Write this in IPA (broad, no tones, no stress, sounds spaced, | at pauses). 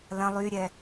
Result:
l ɐ̃ lˠ y ɾʲ ɛ